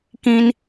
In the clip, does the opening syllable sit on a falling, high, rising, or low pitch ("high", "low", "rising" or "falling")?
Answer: high